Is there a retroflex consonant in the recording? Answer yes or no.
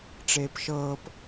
yes